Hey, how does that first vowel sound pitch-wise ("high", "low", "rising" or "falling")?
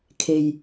low